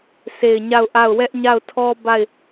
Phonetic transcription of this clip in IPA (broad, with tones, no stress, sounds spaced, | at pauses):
s e˨ ɪ̯ ɲ a˦˨ ʊ̯ ʔ a˦˨ ʊ̯ w ɛ˦ ʔ ɲ a˦˨ ʊ̯ tʰ ɔ˦ b a˦˨ ɪ̯